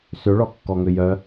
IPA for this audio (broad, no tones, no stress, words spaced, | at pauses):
søɭɔkːɔŋø jœ